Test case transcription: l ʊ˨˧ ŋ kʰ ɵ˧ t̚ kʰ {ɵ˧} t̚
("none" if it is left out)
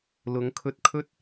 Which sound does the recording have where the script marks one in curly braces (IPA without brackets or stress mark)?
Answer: ɵ˥